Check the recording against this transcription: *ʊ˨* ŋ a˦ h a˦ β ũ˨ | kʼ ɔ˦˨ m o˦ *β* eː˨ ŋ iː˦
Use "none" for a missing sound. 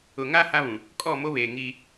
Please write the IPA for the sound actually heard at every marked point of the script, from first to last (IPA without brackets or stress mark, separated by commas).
ʊ˨, β